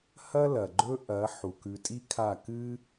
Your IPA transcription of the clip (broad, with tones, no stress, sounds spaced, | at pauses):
h ɐ˦ l ɐ˨ ɡ͡ǃ ɵ˦ ʔ ɐ˨˦ ħ u˨ k ʉ˧ tʼ i˦ kʰ a˦˨ k ɨ˦